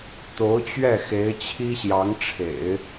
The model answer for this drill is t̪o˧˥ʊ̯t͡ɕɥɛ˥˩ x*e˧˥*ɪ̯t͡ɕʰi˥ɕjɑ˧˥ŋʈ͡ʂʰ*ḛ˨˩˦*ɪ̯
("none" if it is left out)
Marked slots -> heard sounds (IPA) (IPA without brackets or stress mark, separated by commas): e˧˥, ḛ˨˩˦